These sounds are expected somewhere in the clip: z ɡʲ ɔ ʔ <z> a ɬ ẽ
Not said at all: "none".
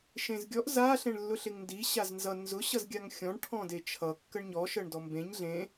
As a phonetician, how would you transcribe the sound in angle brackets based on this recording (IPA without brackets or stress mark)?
z